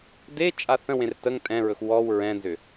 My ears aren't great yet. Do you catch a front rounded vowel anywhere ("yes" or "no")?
yes